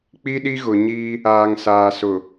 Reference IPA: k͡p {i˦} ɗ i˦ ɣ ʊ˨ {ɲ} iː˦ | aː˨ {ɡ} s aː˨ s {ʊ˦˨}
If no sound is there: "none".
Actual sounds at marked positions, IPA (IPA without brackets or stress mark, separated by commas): i˦, ɲ, ŋ, ʊ˨